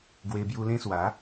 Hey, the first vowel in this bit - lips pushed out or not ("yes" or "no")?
no